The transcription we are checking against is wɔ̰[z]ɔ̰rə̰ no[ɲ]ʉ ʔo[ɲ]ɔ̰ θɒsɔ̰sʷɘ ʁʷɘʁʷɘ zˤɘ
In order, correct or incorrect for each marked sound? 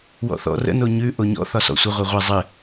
incorrect, correct, correct

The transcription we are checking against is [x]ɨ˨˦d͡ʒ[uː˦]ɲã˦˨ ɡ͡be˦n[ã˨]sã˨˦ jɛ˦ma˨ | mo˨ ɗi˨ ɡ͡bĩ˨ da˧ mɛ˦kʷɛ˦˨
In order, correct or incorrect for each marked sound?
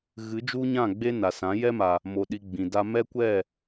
incorrect, incorrect, incorrect

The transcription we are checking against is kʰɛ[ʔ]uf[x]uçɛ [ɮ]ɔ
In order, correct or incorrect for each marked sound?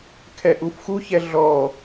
correct, correct, correct

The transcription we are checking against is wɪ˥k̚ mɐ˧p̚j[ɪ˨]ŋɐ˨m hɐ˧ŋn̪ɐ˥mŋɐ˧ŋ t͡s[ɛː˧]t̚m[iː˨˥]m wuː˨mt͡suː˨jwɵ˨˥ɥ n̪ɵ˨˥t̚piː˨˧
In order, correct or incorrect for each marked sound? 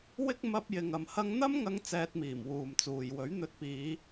correct, correct, incorrect

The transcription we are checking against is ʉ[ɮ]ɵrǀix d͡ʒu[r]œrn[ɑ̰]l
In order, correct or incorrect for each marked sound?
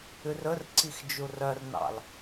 incorrect, correct, correct

